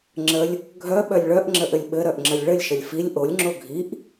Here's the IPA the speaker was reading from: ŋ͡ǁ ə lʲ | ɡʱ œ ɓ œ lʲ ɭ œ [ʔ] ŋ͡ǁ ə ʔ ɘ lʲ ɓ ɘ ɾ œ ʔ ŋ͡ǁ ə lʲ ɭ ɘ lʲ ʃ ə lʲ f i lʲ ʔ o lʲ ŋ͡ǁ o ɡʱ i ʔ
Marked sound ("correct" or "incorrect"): correct